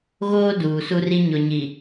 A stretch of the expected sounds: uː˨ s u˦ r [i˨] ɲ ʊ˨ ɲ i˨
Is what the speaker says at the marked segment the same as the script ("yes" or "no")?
no